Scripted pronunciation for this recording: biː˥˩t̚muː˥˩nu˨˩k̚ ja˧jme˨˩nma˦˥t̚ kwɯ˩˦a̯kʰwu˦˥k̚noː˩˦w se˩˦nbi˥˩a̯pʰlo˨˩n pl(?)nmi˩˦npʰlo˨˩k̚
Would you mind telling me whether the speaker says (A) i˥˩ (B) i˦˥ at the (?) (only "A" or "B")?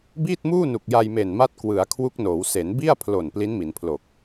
B